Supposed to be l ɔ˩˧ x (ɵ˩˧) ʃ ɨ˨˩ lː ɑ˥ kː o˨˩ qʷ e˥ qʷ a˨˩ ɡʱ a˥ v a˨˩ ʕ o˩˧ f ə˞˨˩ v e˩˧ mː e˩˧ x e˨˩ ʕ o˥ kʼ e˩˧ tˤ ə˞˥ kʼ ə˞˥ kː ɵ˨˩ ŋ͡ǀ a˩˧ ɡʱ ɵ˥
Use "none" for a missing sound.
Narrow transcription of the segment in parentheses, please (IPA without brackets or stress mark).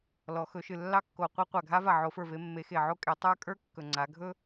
ɵ˩˧